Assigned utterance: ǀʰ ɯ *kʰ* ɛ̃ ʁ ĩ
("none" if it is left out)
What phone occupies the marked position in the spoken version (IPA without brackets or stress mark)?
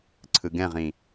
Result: ɡ